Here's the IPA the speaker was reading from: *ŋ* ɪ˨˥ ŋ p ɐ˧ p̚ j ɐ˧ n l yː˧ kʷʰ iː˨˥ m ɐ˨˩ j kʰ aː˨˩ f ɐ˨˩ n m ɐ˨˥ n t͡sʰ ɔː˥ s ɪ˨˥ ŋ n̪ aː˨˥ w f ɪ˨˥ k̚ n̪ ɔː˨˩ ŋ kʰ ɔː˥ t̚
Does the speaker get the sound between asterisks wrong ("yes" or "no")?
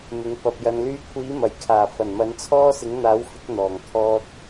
yes